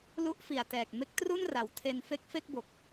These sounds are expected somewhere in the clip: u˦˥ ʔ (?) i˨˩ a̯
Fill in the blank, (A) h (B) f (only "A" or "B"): B